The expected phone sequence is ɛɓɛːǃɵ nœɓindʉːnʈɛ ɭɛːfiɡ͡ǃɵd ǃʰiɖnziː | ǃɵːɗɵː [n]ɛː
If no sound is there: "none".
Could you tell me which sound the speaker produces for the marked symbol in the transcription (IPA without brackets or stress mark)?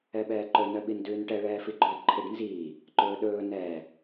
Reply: n